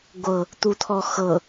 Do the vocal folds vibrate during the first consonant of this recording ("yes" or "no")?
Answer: yes